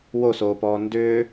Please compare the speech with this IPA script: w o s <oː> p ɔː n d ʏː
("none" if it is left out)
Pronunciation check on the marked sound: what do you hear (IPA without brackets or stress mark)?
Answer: oː